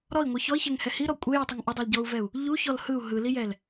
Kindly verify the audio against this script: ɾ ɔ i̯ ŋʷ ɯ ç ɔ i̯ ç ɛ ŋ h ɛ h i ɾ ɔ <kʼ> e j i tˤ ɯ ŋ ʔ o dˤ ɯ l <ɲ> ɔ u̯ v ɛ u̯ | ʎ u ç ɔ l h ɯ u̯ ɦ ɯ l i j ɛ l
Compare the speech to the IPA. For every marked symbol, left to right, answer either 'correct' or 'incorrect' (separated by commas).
incorrect, incorrect